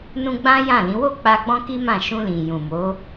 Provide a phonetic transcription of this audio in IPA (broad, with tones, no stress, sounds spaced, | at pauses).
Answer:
n ũ˦ ɡ͡b ã˦ j ã˦˨ l ĩ˨˦ w o˦˨ k͡p a˧ ɡ͡b ɔ̃˦ k i˦ m ã˦˨ ʃ ũ˧ l ĩ˨ j ũ˨ m o˨˦